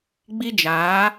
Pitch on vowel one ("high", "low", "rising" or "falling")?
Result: high